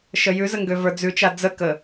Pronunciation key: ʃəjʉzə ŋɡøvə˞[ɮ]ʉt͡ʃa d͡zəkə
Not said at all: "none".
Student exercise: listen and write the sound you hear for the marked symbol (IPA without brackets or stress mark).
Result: d͡z